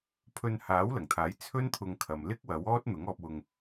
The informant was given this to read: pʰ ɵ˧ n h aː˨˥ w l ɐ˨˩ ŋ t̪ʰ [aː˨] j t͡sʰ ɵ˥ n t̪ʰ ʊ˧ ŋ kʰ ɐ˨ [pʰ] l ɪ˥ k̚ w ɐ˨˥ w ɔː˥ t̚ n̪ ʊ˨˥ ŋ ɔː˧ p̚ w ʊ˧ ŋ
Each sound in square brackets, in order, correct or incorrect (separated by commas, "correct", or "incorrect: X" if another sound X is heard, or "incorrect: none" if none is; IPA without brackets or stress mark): incorrect: aː˨˥, incorrect: m